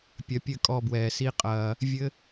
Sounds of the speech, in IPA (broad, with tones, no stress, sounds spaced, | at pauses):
pʲ ɐ˨˦ pʲ ɘ˦˨ kʼ ɔ˧ b w ɛː˨ s i˦ qʼ ɐː˧ | vʲ ɘ˦